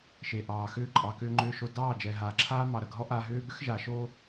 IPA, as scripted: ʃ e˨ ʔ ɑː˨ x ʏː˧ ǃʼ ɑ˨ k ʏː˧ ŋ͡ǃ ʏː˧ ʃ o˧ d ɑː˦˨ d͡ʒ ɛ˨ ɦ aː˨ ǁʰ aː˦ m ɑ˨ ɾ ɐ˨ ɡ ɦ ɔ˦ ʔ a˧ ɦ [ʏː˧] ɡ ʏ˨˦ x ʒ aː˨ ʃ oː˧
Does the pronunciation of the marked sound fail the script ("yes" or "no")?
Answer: yes